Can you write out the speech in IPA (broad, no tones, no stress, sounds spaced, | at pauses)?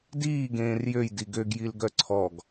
d iː ɡ ẽː r j ø j d i ɡ ø ɡ j i l ɡ œ ǀʰ ɔ ɡ